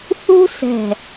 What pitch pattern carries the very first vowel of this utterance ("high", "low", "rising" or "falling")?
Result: high